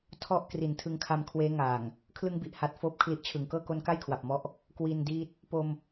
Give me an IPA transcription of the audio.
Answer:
tʰ ɔ˥˩ ʔ k r i˨˩ n tʰ ɯ˧ ŋ kʰ a˧ m kʰ w eː˦˥ ŋ aː˨˩ ŋ | kʰ l ɯ˧ ŋ b i˨˩ ʔ h a˨˩ t̚ f oː˦˥ p̚ kʰ l i˦˥ ʔ t͡ɕʰ ɯ˨˩ ŋ k ɤː˥˩ k o˦˥ n k a˥˩ j kʰ w a˨˩ p̚ m ɔ˦˥ ʔ | k w i˧ n d iː˦˥ t̚ | p o˧ m

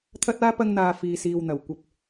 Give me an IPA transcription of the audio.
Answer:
t̪ʰ ɐ˥ t̚ aː˥ p ɐ˥ ŋ n̪ aː˧ f iː˧ s iː˧ w n̪ ɐ˨ w kʷ ɐ˧ p̚

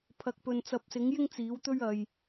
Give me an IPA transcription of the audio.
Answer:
pʰ ɐ˨ k̚ p ɵ˨ n t͡s ɐ˨˥ p̚ s ɪ˨˥ ŋ j ɪ˥ ŋ t͡s iː˨˥ w t̪ ɵ˥ ɥ ɐ˧ j

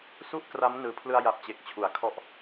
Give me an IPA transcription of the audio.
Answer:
s u˥˩ ʔ k r a˦˥ m n ɯː˩˦ pʰ l ɯ˧ a̯ j a˨˩ p̚ t͡ɕ e˨˩ k̚ t͡ɕʰ u˩˦ a̯ kʰ ɔ˦˥ ʔ

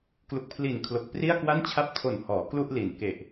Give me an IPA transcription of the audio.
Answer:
k l u˨˩ k̚ pʰ l i˨˩ n kʰ l o˨˩ k̚ p r i˥˩ a̯ k w a˥˩ n t͡ɕʰ a˥˩ p̚ tʰ o˨˩ n h ɔː˩˦ k l u˥˩ ʔ l i˨˩ n k e˨˩ ʔ

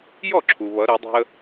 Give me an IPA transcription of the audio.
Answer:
j ɔ˥˩ ǁʰ u˩ β ʌ˩˧ ɾ ɛ˩˧ dˤ ɛ̤˧ ə̯

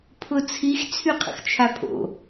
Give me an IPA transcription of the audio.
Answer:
pʰ ʊ t͡sʰ i x t͡sʰ y qʰ ə̰ x t͡ʃʰ a pʰ o̰

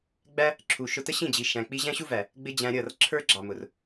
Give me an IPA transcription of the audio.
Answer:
ɡ͡b æ˦ | ǁʰ u˨ ʃ ʊ˧ t ə˦ ɕ ĩ˦˨ d͡ʑ i˨ ʃ æ̃˨ k͡p i˧ ʑ æ̃˦ ɕ u˦ v æ˨ | ɡ͡b ɪ˧ d͡ʑ æ̃˧ ɾʲ ʌ˦˨ r ǁʰ ə˞˦ ɡ͡ǁ ɑ˨ m ʊ˨ r

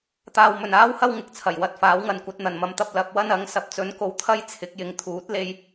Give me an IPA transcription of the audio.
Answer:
t̪ aː˧ w m ɵ˨ n aː˥ w h ɐ˥ w ŋ ɪ˧ k̚ t͡sʰ ɐ˨˩ j w ɐ˧ t̚ f aː˨˥ w ŋ ɐ˨˧ n kʷ ɐ˨˥ t̚ n̪ ɐ˨ n m ɐ˨˧ m t̪ ɐ˧ p̚ l ɐ˨˥ p̚ w ɐ˥ n ɐ˨˥ ŋ s ɐ˨ p̚ t͡s ɵ˨˧ n k o˨˧ w t̪ʰ ɐ˥ j t͡sʰ ɪ˨˥ k̚ j ɪ˨ ŋ t̪ʰ uː˨˥ t̚ l e˧ j

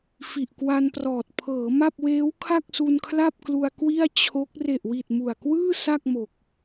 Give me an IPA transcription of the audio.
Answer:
f i˨˩ ʔ k w a˧ n p r ɔː˨˩ t̚ pʰ ɤː˩˦ m a˥˩ p̚ w eː˦˥ w kʰ a˥˩ k̚ s u˧ n kʰ l a˥˩ p̚ k l u˧ a̯ k w i˥˩ a̯ t͡ɕʰ o˦˥ k̚ r e˨˩ ʔ w i˨˩ t̚ m u˨˩ a̯ k w ɯː˥˩ s a˥˩ k̚ m o˨˩ k̚

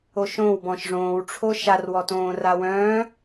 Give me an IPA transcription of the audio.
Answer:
o ʃ õ w b ɔ̃ ʃ ʐ õː w ʈ͡ʂʰ o ʃ a r w ɔ t õː r a w œ̃ː

